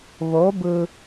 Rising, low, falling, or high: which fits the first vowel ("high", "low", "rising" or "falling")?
rising